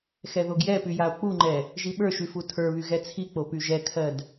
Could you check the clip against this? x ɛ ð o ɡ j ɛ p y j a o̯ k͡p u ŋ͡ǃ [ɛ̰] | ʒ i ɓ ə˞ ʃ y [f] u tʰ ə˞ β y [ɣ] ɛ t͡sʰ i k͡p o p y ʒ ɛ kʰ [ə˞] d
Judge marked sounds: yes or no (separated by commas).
no, yes, yes, no